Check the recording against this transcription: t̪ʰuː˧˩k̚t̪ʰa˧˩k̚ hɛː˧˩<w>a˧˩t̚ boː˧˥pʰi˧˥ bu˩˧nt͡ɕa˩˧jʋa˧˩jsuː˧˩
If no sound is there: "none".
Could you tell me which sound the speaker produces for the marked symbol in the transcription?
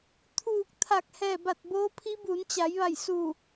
b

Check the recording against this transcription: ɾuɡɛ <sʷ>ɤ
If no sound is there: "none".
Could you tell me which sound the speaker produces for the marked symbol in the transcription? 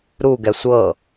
sʷ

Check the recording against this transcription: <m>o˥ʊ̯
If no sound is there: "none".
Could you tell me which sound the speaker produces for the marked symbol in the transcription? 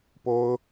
p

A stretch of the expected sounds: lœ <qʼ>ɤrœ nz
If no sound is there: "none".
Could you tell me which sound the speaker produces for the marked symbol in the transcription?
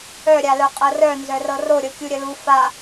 qʼ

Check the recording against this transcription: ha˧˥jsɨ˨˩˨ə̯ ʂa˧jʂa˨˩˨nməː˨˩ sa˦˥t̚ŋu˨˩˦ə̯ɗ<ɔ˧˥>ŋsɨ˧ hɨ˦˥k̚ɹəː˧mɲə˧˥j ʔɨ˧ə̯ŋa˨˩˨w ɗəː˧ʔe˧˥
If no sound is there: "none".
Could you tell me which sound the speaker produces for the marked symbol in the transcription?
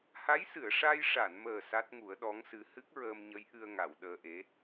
ɔ˧˥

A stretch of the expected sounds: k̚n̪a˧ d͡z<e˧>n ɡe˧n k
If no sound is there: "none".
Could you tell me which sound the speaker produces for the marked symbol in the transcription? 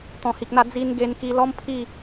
i˧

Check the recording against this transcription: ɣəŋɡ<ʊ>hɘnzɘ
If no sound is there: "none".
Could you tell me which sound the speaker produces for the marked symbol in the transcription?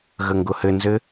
ʊ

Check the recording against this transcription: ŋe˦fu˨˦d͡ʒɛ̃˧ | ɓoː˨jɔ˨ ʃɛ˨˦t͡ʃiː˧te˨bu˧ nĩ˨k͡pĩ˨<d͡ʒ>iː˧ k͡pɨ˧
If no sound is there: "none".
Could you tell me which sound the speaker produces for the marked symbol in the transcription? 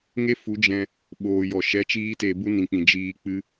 d͡ʒ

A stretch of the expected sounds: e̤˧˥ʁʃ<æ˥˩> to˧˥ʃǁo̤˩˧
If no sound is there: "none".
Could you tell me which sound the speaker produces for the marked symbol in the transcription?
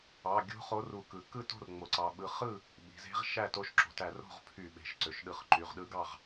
æ˥˩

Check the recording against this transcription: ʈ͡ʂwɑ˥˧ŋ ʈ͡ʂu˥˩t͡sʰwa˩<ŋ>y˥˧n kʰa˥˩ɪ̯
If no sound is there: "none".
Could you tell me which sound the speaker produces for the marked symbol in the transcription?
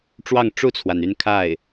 n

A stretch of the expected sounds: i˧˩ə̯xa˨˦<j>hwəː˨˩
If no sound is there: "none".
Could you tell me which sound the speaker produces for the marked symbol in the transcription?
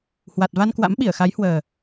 j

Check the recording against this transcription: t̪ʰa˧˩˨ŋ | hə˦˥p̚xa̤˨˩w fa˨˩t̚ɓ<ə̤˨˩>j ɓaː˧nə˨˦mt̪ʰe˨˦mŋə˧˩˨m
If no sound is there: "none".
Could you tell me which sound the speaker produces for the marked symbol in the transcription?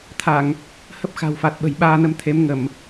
ə̤˨˩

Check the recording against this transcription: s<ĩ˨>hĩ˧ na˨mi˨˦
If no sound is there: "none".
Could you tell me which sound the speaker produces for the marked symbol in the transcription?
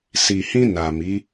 i˨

